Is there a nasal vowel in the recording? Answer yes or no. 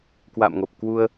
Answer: no